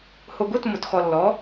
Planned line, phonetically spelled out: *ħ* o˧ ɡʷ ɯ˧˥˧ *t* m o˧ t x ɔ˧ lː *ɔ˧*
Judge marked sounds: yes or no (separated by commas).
no, yes, no